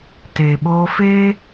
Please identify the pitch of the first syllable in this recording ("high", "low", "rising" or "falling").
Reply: low